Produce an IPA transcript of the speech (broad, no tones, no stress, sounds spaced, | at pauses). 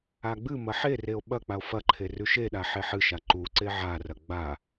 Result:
a ɡ͡b ɨ m ɐ ħ e r e o̯ ɓ ɐ k͡p a o̯ f ɐ ǃʰ e r ʉ ʃ e ɗ a ħ e ħ ɨ ʃ a ǃ u ǀ e ʕ a r ɐ ɡ͡b a